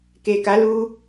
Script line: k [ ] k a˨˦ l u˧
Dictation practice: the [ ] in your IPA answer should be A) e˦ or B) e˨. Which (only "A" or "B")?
B